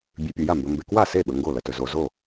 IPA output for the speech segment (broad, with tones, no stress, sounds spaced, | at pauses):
bʲ ʉ˨ pʲ o˨ j a˥˩ m b ɵ˨ m b e˨ k w a˥˩ s e˥˩ ɓ ɵ˨ ŋ ɡ o˥˩ l ɐ˨ t ɵ˨ z o˨ z o˥˩